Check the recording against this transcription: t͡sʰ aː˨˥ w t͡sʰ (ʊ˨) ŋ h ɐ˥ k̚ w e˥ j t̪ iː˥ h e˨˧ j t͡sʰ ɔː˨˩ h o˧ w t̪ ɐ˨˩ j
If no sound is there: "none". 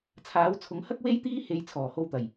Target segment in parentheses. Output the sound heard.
ʊ˨˥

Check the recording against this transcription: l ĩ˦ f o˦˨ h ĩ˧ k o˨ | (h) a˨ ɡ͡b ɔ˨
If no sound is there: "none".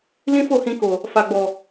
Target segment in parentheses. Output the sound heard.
f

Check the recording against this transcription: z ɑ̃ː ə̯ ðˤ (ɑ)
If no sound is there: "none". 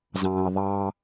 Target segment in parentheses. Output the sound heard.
ɑ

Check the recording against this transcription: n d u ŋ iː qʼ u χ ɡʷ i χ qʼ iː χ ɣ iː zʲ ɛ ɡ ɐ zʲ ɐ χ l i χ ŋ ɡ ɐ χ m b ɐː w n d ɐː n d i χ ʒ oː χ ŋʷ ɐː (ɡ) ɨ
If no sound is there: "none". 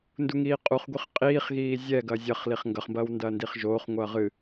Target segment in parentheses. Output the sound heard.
ʁ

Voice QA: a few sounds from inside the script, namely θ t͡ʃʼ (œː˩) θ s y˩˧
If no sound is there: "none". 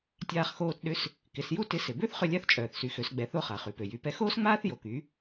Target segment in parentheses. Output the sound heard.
œː˩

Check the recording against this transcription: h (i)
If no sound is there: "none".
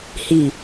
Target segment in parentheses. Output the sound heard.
i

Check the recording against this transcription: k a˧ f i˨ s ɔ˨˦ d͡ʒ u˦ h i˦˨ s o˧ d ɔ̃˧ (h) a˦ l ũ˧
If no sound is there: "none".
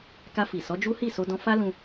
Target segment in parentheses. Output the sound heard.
f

